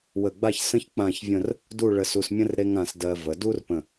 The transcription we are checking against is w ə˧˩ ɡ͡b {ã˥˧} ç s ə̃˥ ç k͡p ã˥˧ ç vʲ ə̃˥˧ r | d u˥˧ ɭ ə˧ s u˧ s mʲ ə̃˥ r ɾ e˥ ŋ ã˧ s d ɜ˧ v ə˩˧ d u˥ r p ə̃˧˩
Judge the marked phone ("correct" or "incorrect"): incorrect